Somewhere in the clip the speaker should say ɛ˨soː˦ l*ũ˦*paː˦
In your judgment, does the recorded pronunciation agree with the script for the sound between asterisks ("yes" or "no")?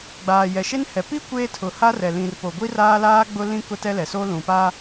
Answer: no